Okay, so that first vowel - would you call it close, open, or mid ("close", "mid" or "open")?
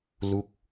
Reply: close